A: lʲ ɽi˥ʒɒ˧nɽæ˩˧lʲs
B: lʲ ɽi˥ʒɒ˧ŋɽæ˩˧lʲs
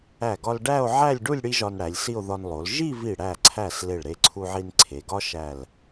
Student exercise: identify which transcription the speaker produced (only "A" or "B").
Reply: A